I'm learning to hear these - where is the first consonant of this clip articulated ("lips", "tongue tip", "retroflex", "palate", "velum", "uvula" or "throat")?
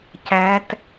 palate